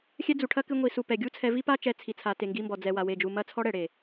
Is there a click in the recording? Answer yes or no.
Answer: no